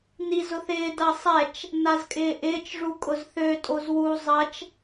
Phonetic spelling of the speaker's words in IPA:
nizʊθɪː dɐsˤɛt͡ʃ | nazkʼɪːʔɪːt͡ʃ ʐukʼʊzθø tʼozwu zˤɐt͡ʃ

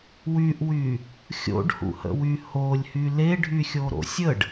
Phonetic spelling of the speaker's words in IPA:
wyʔwy | xʲo̰ɖhṵhə̰wy holʲhy leɖʱyxʲoɾo̰ sʲəɖ

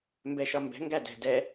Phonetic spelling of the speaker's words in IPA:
mbɛʃɒmbɛ̤ ŋɡædɛ̤ dɛ

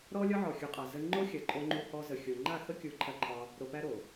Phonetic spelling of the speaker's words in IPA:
ɾɔ˦lʲɒ˦ʕɔ˨ xʲu˨qʼa˨ zə˧ ŋ͡ǃo˦xʲɐ˨ǃʼo˧ ŋ͡ǃu˧ hɔ˧ zə˨xʲo˨ ŋ͡ǃa˦˨xə˦kʲu˨˦ ǃʰɐ˧ǃʰɒ˧ | ɾo˧pæ˦ɾo˨

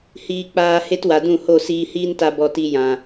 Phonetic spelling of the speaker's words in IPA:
hiː˧k͡paː˧ he˦twa˨dũ˦˨ ho˦˨siː˧hiː˦nta˧ bɔ˨ti˨ jã˨

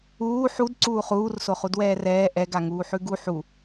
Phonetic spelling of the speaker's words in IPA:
uː ħud ǀuːχuːrso χudwɛːrɛː ʔɛ ɡaŋuːħʉɡu ħu

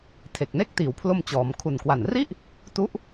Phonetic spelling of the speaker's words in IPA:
tʰe˨˩k̚ ne˦˥k̚tiː˩˦wpʰlo˧mt͡ɕɔː˩˦m kʰu˨˩nkwa˨˩nri˥˩ʔ | tu˦˥ʔ

